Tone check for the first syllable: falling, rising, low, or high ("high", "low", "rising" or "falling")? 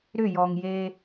falling